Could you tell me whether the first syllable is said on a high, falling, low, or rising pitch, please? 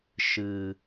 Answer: low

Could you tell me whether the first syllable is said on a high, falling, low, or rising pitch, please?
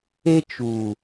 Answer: high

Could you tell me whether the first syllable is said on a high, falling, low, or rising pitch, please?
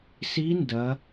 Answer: rising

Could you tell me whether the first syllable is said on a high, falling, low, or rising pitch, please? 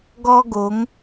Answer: high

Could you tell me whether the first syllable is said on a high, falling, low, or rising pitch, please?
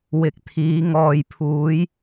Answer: low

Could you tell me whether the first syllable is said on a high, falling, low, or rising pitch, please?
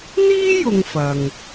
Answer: high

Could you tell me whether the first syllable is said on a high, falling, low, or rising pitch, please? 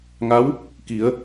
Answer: rising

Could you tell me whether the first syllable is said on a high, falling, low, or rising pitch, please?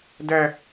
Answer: high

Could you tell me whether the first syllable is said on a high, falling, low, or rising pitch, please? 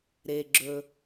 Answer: low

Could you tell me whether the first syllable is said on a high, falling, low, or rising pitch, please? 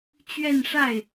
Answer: falling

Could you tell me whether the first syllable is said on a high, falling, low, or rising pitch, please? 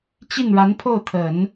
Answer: falling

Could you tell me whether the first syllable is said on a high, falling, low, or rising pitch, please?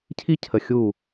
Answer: high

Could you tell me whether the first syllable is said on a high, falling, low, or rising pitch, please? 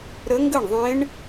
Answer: rising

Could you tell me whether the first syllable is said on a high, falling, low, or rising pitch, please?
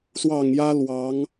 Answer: low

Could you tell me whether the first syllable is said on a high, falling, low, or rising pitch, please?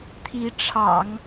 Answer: rising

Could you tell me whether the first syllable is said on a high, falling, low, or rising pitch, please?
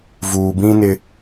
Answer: low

